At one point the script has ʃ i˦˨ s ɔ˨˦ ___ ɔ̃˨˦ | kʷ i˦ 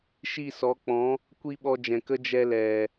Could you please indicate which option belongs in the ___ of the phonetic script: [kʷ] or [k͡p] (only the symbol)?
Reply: k͡p